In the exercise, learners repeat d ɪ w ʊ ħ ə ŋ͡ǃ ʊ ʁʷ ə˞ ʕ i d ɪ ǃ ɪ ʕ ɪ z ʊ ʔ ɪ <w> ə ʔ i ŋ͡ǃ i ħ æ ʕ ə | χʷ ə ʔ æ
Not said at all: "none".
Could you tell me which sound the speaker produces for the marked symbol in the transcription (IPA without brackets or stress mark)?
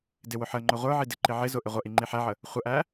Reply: ʁʷ